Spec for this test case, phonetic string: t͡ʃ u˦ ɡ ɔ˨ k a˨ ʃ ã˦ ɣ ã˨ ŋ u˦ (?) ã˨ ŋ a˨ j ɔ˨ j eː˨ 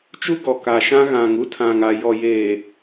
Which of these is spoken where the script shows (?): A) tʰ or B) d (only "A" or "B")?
A